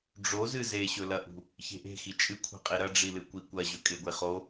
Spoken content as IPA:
ɖ͡ʐozɨ zeɕɵlɐʔṳ | çe̤ʔe̤xi t͡ʃʼɨkʷʰe̤qʼi ɾɐɖ͡ʐilɨ kʷikʷɐ ʑɵkʼeɡʷeχo

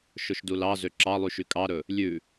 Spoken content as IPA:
ʃɵʃdulɑ zøǁɑlˠyʃy kʼɑɾɵ | lʲʉ

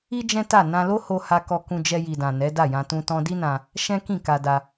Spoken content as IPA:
i˦ d͡ʒɛ̃˦ta˦˨ nã˧lo˦ho˧ ha˧kɔ˧kũ˧ d͡ʒɛ˧ji˨dã˨ nɛ˨˦da˦˨jã˧ tũ˦tɔ̃˦ di˦nã˧ | ʃɛ̃˦kĩ˦˨ ka˧ da˧

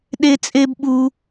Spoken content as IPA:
ɗe˦t͡sʼe˦b ɓu˦

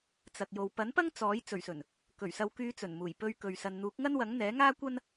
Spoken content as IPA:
t͡sɐ˨k̚jo˨w pɐ˨˥npɐ˥ŋ t͡sɔː˨˥j t͡sɵ˨˩ɥsɵ˨˩n | kɵ˨˩ɥsɐ˨˧wkyː˨˧ t͡sɵ˨˩nmuː˨˩j pɵ˧ɥ kɵ˨ɥsɐ˨n n̪uː˨˥k̚ŋɐ˥nwɐ˨˥ŋn̪ɛː˨˥ ŋaː˥kʷɐ˥n

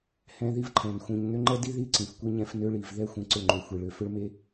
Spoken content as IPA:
hɛ̃˦ði˦v ǃʰɛ̃˨n xʷĩ˨ɲ nø˦ŋ͡ǃɛ˦di˦ ði˦ ǀĩ˨fkʷi˦ɲɛ̃˦f nø˦ɭi˨v ðɛ˦xʷĩ˨ ǀʏ˦˨ŋ͡ǃø˨xʷi˨ɭø˨ fʏ˦ɭme˦

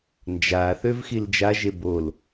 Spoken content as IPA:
nd͡ʒaθøv xild͡ʒaʒe bol

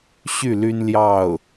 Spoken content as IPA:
ɕy˥˩ly˥nljɑ˥˩ʊ̯

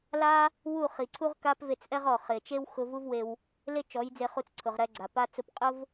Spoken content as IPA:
la˦ | wu˦˨χi˨ǀʰu˦ʁ ka˦pve˧t͡sʔɛ˦ʁɔ˨ χɪ˨ t͡ʃe˦wxʊ˧vu˦vwe˧w | le˦t͡ʃɔ˨˦jd͡ze˧ χu˧t͡sǀʰʊ˨ʁɾɛ˧ ɡ͡ǀa˨pa˦ t͡sʊ˧pqʼʊ˦v

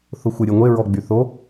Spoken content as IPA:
θʊxʷɪ ɾʲeŋʷe ɹɔɡ͡byθo

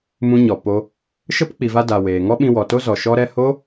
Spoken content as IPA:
mũ˧ɲɔ˨ po˧ | ʃə˦p k͡pi˨va˧ da˨ weː˨ŋɔ˦ɓĩ˧ wɔ˨to˦zɔ˨ ʃɔ˧ɾɛ˧ho˦

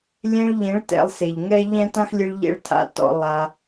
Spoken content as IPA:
lʲẽ˧ɭʎẽ˨˦ɭ tɛ̰˧lˠse˨ʎŋɛ˦ ʎɛ̃˦tã˦xlʲɨ˧ɭ ʎḛ˦ɭtʰa̰˦ tɔ̰˦ lˠa˧

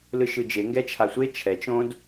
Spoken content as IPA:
lɯʃɯd͡ʒe ŋɡɛt͡ʃʰasʷe t͡ʃʰɛt͡ʃ õd

